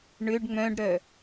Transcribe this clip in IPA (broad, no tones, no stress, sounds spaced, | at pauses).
ɳ ʏ ɖ ŋ͡m œ̃ ɖ ɾ œ